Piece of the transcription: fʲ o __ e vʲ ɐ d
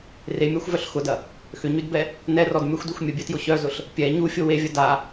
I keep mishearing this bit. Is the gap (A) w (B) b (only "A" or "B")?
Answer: A